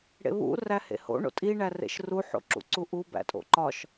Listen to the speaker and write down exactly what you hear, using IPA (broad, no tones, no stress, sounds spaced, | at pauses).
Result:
ɽ ḛ β ṵ r æ h ḛ h o̰ ɳ o̰ tʼ i ɳ æ r ḛ ʃ r u ħ o̰ ǁ ṵ ǀ u ʔ u b æ̰ tʼ o̰ ǃ ɒ ʃ